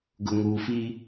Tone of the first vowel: low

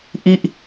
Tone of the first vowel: falling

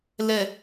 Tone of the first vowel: low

